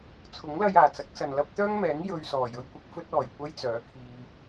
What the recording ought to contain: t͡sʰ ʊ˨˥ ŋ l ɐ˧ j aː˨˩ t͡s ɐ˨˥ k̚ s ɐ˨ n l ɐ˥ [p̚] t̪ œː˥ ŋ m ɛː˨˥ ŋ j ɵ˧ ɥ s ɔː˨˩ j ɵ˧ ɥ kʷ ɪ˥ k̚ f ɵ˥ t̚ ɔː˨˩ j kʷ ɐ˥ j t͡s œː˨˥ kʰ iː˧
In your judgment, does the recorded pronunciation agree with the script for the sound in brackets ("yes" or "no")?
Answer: yes